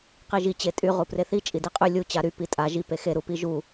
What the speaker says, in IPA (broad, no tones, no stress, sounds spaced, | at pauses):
q i ʒ i t͡ɕ e tʼ y ʁ u p r e θ i t͡ʃʼ i d i qʼ y lʲ u t͡ɕ a ɾ y p i tʼ a ʒ i p e x e ɾ u p i ʒ u